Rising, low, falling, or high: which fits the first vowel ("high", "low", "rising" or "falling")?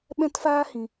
high